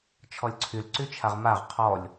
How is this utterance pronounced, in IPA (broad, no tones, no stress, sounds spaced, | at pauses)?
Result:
t͡ʃʰ ɔ lʲ ǀʰ y l ǀ y t͡ʃʰ a ʁ m a ʁ qʰ ɔ lʲ